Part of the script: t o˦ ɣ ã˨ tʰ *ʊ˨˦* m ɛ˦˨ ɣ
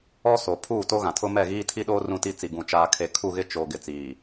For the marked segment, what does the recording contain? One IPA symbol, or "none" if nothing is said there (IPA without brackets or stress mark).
ʊ˦